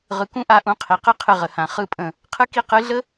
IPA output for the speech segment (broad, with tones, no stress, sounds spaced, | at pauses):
ʁ ɯ˨ k ũ˦ ʔ a˧ ʔ ũ˧ qʰ i˨ q ɯ˦ qʰ ɨ˧ ʁ ə˨ h ã˨ χ ɯ˧ pʼ ə̃˨ | qʰ ɨ˦ k i˦ q ɨ˨˦ ɮ ə˦